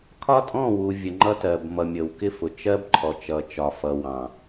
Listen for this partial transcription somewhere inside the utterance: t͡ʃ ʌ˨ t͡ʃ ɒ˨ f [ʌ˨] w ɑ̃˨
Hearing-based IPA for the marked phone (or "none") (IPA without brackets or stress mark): ʌ˨